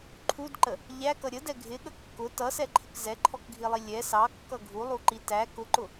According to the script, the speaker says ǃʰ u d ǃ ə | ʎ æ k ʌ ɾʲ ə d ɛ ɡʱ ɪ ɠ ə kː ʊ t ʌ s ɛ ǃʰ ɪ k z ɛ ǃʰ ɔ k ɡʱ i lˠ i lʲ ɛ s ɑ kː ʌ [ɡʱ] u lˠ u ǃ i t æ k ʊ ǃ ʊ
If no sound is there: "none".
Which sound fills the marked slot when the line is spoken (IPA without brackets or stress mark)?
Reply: ɡʱ